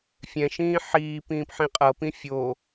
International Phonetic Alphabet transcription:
fʲ ɛ̃ ʃ ĩː ħ iː p ĩː p ħ ĩ qʼ ɤ p ĩ fʲ o

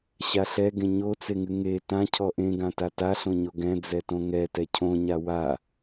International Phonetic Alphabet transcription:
ɕ a ɬ ɛ ɡ ẽ ɲ o t͡s e ŋ ɨ ŋ e t ã cʰ ɔ ʔ ẽ ɡ ã t a t a ɬ õ ɲ o ɡ ɛ̃ d͡z ɛ t õ ŋ ɛ t ɛ cʰ õ ɲ a w a

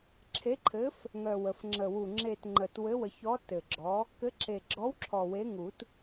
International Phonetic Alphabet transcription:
ǁʰ e˨˥ ǃʰ ɘ˨˥ f | ŋ œ˨˩ w ə˨˩ f ŋ͡ǁ ə˨˩ w u˨˩ ŋ͡ǁ e˨˩ t ŋ͡ǃ ə˨˩ t w ɘ˨˥ w ə˨˩˦ ç ɔ˨˥ t ɘ˨˩ ɡ͡ǁ ɔ˨˥ | k ɘ˨˥ ǁ e˨˩ ɡ͡ǁ ɔ˨˥ w ǁʰ ɔ˨˩ w e˨˥ ŋ u˨˩˦ t

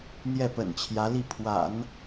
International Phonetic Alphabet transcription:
n̪ j ɛ˥˩ p ə̰˨˩ n t͡ɕʰ j ä˧˥ l i˥˩ pʰ w a̰˨˩˦ n

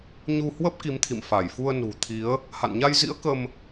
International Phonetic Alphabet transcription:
ɲ u˧ h w ə˦˥ p̚ k i˨˦ m t̪ʰ ḭ˧˨ m f a˧˩ j f u˧ ə̯ n ṳ˨˩ t̪ʰ i˨˦ ə̯ | h a̰˧˨ n ɲ a˧ j z ḭ˧˥ ə̯ k ə˧ m

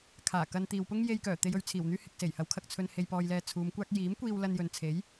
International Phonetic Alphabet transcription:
kʰ aː˨˩ k ɐ˧ n t̪ iː˨ w p ʊ˥ ŋ j e˧ j k œː˨˩ t̪ e˧ j ɵ˨ ɥ t͡sʰ iː˨˩ w n̪ yː˥ h ɪ˨ k̚ s e˨˩ j h ɐ˨˥ w kʰ ɐ˨ k̚ t͡sʰ ɵ˧ n h e˧ j p ɔː˧ j l ɛː˧ t͡sʰ uː˨˧ m kʷ aː˥ k̚ j iː˨˥ m kʷ iː˧ w l ɐ˧ n j ɵ˨ n t͡sʰ e˨˥ j

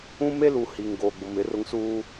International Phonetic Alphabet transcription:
ũ˦ m e˦ l u˨ h i˨ ŋ ɡ oː˨ ɡ͡b ʊ˨ m ɪ˨˦ r ʊ˦ ŋ s uː˦

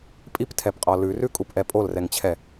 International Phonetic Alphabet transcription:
pʼ i p tʰ ɛ p qʼ ɔ l ʉ r ʉ kʼ u p ʔ ɛ pʼ o l r ɛ ŋ t͡ɕʰ ɛ

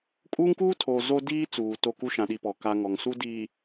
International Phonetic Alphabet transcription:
kʼ uː˦ ŋ k uː˦ tʰ oː˨ z o˦ d iː˦ t͡s uː˨ t o˦˨ k u˦ ʃ ã˨ ɗ i˨ p ɔ˨ k a˦ ŋ ɔ˨ ŋ s u˦ d iː˨

